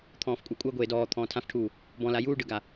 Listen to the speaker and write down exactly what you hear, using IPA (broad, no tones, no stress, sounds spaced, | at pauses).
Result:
t̪ʰ ɔ̃ː f kʷʼ ɛ kʷʼ ɤ ɡʷ eː d ɔː t̪ʰ ɔ̃ː tʰ ã f ʈʰ uː | b ɔ̃ l a j uː ɖ ɯ ɡ a